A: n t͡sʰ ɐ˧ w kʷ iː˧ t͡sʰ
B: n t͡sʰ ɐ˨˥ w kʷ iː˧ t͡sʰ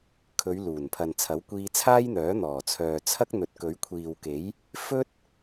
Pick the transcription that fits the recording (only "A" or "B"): B